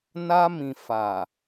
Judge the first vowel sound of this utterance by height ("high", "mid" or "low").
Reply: low